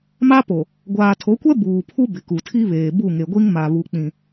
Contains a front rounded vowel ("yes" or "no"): no